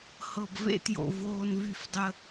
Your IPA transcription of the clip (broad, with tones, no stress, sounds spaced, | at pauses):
h ɤ˨ b v ḛ˧ t j o̰˨ v oː˧ n v y˧ f dˤ ə˧